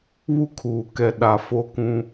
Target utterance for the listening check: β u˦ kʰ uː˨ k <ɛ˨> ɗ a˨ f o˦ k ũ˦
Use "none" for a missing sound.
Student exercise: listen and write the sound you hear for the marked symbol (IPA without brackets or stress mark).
ɛ˨